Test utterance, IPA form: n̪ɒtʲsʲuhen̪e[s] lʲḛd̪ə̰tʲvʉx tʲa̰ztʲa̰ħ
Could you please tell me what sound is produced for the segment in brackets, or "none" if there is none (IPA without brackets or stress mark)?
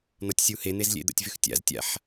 z